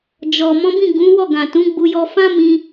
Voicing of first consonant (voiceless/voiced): voiced